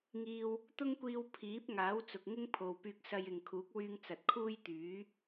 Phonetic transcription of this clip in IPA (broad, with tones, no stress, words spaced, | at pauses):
ŋiː˧w | t̪ʊ˥ŋkʷiː˧w pʰiː˨˥p̚ŋaː˨˥w t͡sʊ˨k̚ŋɪ˥ŋpʰo˨w pyː˧k̚sɐ˧jɪ˨ŋkʰuː˨˥k̚ wyː˧ŋt͡sɐ˨t̚kʰuː˥jt̪yː˨˥